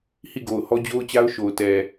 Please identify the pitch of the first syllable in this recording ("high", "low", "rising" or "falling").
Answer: falling